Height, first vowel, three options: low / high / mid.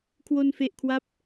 mid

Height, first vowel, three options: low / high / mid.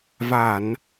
low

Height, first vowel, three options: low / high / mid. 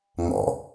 mid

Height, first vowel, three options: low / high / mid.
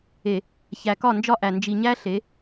mid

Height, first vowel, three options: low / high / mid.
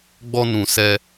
mid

